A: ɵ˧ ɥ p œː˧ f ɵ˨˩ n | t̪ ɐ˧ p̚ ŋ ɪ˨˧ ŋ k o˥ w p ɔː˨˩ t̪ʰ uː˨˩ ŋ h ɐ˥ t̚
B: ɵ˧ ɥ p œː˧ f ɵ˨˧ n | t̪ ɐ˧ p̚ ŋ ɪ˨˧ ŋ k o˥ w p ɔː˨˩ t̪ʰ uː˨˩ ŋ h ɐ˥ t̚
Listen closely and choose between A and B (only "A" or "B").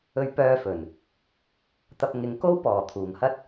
A